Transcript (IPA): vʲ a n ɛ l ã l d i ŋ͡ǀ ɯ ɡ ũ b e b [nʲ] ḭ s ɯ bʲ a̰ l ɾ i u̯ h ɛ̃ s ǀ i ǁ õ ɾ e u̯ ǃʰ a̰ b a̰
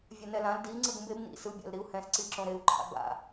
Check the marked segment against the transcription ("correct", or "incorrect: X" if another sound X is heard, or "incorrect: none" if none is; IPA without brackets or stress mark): incorrect: n